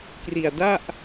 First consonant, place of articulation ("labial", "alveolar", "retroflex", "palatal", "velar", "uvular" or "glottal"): velar